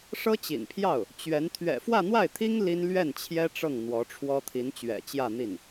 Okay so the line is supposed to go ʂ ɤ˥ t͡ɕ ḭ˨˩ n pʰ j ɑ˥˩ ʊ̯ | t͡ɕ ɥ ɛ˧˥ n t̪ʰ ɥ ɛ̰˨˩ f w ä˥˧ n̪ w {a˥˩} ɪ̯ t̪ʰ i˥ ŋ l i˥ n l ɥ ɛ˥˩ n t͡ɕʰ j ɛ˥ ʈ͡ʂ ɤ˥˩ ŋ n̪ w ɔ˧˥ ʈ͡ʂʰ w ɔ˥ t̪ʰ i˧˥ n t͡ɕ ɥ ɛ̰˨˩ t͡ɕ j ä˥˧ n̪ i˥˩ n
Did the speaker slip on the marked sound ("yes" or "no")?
no